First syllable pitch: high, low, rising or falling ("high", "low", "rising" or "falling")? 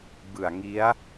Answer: low